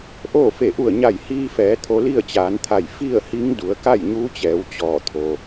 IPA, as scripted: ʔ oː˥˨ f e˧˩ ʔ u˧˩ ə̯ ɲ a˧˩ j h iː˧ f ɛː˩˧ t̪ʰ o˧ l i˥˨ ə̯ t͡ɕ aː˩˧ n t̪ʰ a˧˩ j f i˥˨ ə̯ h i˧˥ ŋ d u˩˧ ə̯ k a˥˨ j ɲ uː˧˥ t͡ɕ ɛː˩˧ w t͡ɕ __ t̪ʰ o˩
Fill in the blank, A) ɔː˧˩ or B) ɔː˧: A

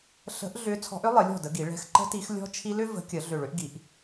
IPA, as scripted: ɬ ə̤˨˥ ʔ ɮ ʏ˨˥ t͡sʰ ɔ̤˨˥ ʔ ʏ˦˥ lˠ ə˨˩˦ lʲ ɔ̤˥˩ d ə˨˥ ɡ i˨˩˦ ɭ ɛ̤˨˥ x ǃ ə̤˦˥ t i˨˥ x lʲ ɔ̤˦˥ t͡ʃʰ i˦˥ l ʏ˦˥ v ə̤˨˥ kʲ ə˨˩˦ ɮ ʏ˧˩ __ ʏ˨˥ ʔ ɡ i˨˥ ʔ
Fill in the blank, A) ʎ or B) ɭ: B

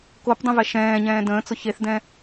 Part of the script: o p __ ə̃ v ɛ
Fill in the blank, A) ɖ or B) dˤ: B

